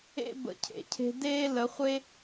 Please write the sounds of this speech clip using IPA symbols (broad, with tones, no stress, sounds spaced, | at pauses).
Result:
ḛ˦ b ə̰˨˦ cʰ ḛ˨ cʰ e̤˧ d eː˦ l ə˨˦ χʷ e˦